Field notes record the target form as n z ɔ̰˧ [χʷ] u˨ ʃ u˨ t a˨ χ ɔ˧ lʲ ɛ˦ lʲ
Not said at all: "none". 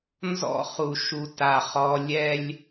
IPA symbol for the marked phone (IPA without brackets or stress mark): χ